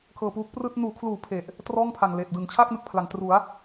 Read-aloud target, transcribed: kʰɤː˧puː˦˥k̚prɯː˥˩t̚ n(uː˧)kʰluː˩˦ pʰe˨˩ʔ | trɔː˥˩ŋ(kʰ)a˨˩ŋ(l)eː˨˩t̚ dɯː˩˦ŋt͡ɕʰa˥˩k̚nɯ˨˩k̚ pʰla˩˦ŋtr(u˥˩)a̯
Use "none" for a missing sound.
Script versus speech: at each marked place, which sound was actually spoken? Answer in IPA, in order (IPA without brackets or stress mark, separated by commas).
uː˩˦, pʰ, l, u˩˦